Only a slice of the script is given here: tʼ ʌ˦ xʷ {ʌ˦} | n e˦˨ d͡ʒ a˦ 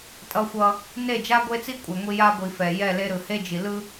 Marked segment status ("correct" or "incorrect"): correct